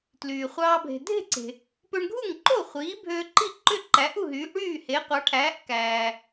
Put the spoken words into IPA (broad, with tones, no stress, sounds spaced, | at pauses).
t l yː˩ χʷ ɑː˧ bʱ e̤˩ dʱ e̤˥˩ ǀ e̤˩ | p ø˧ ɳ ɡʱ u˥˩ ŋ ǃ o˥˩ χʷ iː˩˥ bʱ øː˧ ǃ i˥˩ ǃ ø˥˩ ǃ æ˩˥ ʔ u˥˩ ɦ yː˩˥ ʔ ɽ yː˥˩ h e˩˥ qʷ ɑ˩˥ ʈʰ æː˩˥ ʔ k æː˩